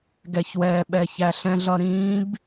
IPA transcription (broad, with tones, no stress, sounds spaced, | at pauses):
ɡ ɛ˩ ç w ɛː˩ ɓ ɛ˧ ç æ˧ ɬ ɛ̃˥ ɮ ʌ˥ ɾ ĩː˧˥ b